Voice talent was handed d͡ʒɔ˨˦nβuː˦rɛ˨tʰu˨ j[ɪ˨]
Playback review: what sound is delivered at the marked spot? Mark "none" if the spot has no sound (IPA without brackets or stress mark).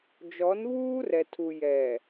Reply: ɛ˨